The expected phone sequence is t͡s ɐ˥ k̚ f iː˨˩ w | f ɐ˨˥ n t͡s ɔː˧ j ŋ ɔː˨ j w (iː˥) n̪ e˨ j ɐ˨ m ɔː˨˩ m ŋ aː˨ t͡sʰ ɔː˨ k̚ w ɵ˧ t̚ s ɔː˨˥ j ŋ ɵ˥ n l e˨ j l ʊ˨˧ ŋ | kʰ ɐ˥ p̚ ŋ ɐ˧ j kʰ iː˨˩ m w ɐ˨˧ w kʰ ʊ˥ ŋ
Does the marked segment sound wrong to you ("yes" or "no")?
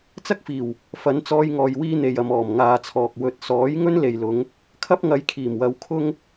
no